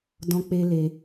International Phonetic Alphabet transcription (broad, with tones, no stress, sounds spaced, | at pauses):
d ɔ̃˦ k͡p e˦ l e˧